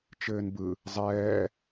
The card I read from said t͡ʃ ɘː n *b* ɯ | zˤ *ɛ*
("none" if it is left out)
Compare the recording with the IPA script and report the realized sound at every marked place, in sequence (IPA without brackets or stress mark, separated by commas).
b, ɛː